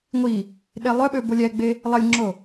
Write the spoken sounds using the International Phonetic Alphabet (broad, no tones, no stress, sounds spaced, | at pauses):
ŋʷ i | ɗ e lˠ œ ɓ ø b o lʲ ɛ ɡ͡b e | lˠ ə lʲ ŋ͡ǁ o